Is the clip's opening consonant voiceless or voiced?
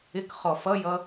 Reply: voiceless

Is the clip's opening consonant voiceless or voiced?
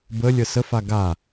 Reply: voiced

